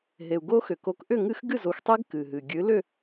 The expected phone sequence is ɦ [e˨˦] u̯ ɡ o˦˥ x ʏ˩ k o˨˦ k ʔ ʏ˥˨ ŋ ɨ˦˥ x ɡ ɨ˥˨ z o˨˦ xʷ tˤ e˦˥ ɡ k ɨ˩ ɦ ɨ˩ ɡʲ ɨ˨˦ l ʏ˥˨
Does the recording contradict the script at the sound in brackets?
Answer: yes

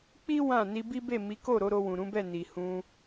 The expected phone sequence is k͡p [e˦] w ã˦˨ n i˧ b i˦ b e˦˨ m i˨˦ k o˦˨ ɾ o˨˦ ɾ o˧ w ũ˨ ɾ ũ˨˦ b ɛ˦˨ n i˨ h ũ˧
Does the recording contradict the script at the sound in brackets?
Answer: yes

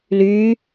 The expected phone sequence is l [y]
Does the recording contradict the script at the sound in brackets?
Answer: no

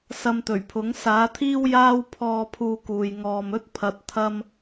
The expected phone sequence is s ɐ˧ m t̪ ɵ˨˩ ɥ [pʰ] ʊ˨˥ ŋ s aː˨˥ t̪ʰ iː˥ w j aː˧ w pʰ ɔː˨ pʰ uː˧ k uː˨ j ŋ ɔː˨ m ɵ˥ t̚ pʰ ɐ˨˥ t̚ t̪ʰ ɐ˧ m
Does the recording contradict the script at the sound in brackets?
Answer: no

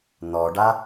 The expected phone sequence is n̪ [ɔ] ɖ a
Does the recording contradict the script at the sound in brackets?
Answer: no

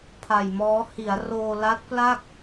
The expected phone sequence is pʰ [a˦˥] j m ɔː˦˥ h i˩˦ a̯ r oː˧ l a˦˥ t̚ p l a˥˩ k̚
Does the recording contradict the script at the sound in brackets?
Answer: yes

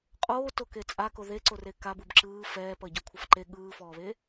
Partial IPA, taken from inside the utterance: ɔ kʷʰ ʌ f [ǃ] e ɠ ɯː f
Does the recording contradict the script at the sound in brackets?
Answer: no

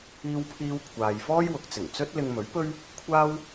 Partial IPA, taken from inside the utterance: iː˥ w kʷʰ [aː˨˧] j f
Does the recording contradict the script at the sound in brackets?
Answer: yes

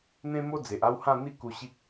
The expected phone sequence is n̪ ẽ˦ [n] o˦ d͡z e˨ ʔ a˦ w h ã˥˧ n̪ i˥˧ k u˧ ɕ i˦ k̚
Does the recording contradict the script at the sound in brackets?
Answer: yes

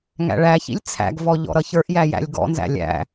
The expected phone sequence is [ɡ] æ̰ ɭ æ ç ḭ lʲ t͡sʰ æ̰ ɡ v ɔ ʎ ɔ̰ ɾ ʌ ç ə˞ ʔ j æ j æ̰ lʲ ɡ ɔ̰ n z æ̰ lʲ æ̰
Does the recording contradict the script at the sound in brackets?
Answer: yes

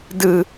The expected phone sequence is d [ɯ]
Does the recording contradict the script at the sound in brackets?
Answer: no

